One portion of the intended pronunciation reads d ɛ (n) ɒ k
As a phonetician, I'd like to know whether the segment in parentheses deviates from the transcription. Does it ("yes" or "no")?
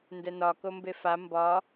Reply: no